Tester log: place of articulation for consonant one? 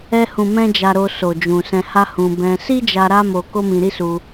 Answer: glottal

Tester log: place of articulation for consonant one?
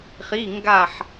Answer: uvular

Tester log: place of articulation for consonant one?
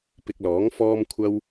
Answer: labial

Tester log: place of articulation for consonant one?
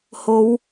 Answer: glottal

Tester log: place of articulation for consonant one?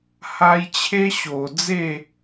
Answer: glottal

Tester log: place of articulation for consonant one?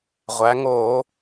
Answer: uvular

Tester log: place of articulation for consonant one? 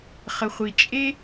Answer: uvular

